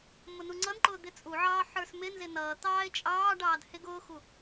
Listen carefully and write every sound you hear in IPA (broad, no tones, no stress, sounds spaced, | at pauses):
m ʊ n u ŋ͡ǀ ʌ n ǃ ʊː d̪ ɪ t͡sʼ u ʕ ɑː ħ ə˞ s m ɪ n z ɪ n ʌː t̪ ɑː ɪ̯ t͡ʃʼ ɑː ɖ ɑː d h ɪ ɡ ʊː x u